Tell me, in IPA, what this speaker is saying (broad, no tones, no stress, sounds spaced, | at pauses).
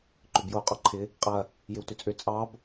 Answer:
ǃ ʏ b j o u̯ qʼ ɔ ǃʰ ɪ | qʼ ɐ | j ɪ w t ʏ t͡sʼ ʏ t͡sʼ ɑ b